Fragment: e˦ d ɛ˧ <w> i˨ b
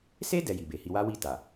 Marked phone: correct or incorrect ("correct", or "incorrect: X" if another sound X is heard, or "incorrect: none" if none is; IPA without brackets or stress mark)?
incorrect: j